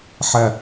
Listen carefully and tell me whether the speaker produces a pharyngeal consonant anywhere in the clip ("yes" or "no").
yes